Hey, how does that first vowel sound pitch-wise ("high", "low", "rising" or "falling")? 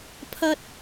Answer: high